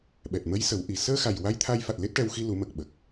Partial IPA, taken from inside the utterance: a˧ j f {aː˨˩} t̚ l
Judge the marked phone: incorrect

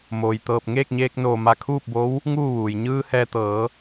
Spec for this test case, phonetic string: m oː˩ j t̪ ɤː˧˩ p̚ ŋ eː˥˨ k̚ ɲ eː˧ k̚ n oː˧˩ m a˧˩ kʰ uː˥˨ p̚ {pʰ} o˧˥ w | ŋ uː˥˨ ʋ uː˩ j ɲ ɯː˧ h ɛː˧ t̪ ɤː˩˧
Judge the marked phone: incorrect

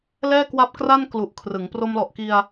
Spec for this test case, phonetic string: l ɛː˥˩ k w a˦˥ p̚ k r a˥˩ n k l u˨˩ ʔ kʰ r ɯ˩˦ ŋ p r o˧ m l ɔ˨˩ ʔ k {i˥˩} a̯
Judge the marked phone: incorrect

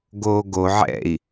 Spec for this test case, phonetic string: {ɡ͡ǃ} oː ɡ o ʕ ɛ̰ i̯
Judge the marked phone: incorrect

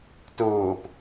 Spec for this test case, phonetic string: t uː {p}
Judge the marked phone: correct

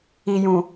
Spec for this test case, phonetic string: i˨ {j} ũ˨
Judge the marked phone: correct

